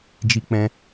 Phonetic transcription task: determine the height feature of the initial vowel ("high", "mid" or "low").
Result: high